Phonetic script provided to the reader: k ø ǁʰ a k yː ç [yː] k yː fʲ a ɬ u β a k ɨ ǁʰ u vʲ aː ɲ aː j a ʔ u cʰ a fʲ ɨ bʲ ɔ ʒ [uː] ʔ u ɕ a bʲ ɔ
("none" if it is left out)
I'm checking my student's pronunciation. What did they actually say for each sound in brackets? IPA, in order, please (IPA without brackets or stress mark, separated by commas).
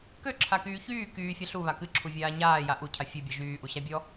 yː, yː